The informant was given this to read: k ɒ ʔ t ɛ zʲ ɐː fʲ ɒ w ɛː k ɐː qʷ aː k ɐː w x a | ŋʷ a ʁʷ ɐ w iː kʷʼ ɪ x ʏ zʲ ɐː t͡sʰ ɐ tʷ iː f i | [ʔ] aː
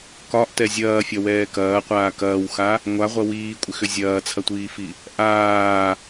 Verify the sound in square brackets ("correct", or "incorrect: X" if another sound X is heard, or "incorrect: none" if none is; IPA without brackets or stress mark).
correct